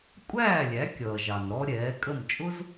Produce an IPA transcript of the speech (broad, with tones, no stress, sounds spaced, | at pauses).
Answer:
kʷʼ æː˥˩ lʲ æ˩˥ kʲ ʌː˩ ʒ ɑ˩ n ɾ ɔ˧ ɾʲ ɛː˩˥ kʼ ə˥˩ m t͡ʃʼ ʊ˥ z